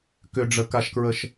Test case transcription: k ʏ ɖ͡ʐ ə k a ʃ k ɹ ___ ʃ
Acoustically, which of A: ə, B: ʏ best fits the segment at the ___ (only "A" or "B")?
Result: A